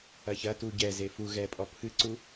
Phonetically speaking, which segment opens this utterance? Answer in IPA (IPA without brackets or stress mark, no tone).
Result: ɐ